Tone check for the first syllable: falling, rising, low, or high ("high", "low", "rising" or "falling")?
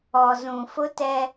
low